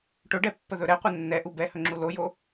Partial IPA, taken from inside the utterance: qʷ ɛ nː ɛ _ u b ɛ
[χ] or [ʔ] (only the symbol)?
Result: ʔ